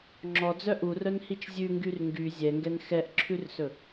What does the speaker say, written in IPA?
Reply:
ŋ͡ǁ ɔ d͡z œ ʔ u r œ n h i t͡ʃ zʲ ʉ ŋ ɡ y r ŋ ɡ y zʲ ɛ ŋ ɡ ɛ n x ɛ ʔ ǁʰ ʉ r s ɵ

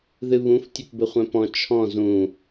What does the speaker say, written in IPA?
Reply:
ð ɨ β ũ f tʲ ɘ p b ɘ χʷ ɛ̃ p ɔ̃ t͡ʃʰ ɔ̃ z ũ

